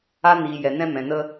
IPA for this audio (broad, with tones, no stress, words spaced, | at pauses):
a˦ niː˨jɛ˨nɛ̃˧ mɛ̃˨nə˧